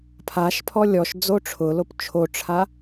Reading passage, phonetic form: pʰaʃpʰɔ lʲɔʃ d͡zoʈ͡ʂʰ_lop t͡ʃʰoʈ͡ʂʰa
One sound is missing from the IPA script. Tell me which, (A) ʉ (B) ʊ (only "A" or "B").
B